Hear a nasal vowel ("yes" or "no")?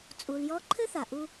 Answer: no